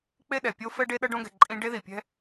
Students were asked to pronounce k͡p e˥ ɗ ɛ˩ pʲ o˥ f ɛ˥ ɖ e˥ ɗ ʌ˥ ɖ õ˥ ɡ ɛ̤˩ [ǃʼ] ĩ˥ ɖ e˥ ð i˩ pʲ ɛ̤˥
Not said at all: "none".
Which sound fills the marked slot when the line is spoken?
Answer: ǃʼ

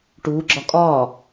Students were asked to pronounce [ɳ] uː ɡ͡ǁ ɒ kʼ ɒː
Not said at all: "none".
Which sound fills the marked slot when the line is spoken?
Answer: ʈ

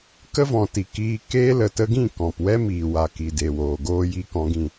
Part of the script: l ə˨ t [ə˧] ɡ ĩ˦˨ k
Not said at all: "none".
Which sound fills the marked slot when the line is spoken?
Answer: ə˧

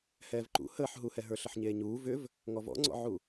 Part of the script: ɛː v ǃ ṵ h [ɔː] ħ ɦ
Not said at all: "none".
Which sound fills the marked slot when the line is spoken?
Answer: əː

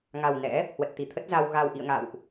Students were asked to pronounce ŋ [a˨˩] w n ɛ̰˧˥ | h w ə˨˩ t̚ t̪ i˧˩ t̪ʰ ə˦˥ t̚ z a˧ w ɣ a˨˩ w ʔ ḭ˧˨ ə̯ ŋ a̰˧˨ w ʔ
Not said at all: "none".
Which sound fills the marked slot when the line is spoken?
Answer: a˨˩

